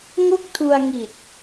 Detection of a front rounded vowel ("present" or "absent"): absent